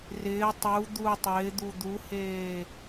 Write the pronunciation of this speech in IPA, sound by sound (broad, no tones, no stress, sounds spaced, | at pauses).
r ɪː tˤ u d̪ u tˤ ɪː d̪ u d̪ u h eː